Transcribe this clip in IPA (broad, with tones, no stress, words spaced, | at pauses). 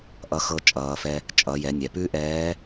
ʔʌ˧xɤ˧t͡ʃʼʌː˩˧fɛ˧ | t͡ʃʼʌ˩˧jɛ˩˧nʲɛ˩ pʉ˥ʔɛː˧˥